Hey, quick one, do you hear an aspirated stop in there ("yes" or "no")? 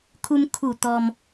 yes